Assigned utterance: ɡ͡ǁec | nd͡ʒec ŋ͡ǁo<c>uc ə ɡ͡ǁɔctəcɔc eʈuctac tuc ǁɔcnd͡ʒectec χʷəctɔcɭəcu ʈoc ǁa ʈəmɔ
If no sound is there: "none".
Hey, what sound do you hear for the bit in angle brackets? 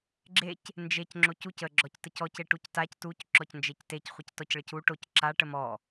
c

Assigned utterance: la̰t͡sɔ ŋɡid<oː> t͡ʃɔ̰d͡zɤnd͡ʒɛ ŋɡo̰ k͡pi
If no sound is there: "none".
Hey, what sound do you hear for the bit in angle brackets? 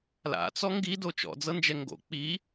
o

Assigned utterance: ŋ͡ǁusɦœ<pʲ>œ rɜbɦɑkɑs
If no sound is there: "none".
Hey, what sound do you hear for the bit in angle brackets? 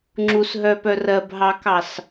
p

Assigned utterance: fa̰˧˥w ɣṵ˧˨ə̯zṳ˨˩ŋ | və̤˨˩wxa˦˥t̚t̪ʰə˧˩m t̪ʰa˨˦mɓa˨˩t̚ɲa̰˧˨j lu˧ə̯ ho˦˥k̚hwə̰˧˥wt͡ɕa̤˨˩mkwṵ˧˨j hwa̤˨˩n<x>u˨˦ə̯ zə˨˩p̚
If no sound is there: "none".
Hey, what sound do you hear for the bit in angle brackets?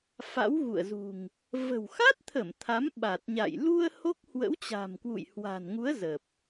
ŋ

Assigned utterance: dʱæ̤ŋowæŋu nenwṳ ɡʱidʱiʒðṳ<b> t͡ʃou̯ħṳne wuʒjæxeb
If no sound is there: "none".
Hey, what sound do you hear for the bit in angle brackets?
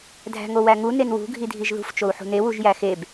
f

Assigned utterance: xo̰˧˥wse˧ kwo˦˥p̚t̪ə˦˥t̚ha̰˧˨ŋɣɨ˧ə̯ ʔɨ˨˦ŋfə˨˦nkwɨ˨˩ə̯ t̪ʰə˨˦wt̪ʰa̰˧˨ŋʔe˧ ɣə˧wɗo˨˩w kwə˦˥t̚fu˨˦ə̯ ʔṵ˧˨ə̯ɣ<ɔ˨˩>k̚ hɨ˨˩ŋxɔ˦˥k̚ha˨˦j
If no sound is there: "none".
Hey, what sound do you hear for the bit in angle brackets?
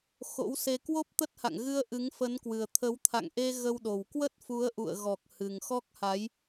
ɔ˨˩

